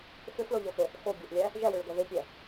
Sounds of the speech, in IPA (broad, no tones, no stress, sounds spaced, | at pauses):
f ʏ f ɭ o ʎ o x ʏ | x o bʲ o ʔ lʲ ɛ | ʒ ɛ w ʏ ɭ ʏ ɡ ɛ ð i pʲ ɛ